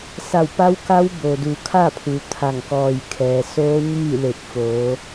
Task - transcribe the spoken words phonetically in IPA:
s a˧˩ w p a˧˥ w k a˧˥ w b o˩ d u˩˧ kʰ a˥˨ pʰ u˩ t̪ʰ a˧˩ ŋ k ɔː˧˩ j kʰ ɛː˩ s oː˧˥ ɲ iː˥˨ l e˧˩ k̚ f oː˩˧

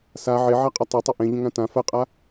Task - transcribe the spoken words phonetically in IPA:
s a ʕ e ʕ a qʼ ʌ tˤ ʊ tˤ ɪ ʔ ẽ ʎ ə̃ ŋ ã t ã f ɜ qʼ a

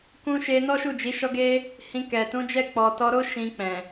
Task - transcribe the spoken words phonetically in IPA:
k ũ˧ ʃ e˧ n ɔ˦ ʃ u˦˨ d͡ʒ i˨˦ ʃ ɔ˦ ɡ e˦ | h ĩ˧ k ɛ˨ t ũ˨˦ d͡ʒ ɛ˦˨ k͡p ɔ˨ t ɔ˧ ɾ o˦ ʃ ĩ˧ k͡p ɛ̃˨

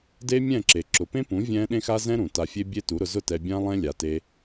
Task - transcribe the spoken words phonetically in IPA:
d e˦ mʲ ɛ̃˦˨ ǁ e˨ ǁ ʊ˨ p ẽ˦ p ũ˨˦ vʲ ɛ̃˦ ɗ ẽ˦ x a˦ z ɛ̃˦ ɾ ũ˨ t a˧ fʲ e˦ bʲ e˦ t u˨˦ ɾ ʊ˧ z ʊ˦˨ t ɛ˧ bʲ ã˦ lˠ ɛ̃˦ lʲ a˨ t e˧

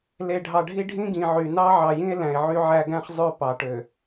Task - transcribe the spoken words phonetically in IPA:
l e˨ ɖʱ ɑ˨ ɖʱ i˦ ɖʱ ĩ˦ ɡ ĩ˨ ʕ y˨ n ɑ˦ ʕ ɑ˨ j ĩ˦ e̯ l æ̃˨ e̯ ʕ y˦ ʕ æ˦ ɡ æ̃˦ χ zˤ ø˦˨ p ɑ˨ ʈ ø˨

